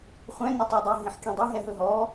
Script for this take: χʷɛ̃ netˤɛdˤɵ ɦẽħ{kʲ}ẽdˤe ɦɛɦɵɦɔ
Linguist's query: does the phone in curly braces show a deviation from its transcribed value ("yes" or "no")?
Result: no